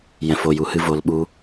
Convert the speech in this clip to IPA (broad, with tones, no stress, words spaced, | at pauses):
jɛ̃˨fo˨ju˨hɨ˧ vo˨lɓu˧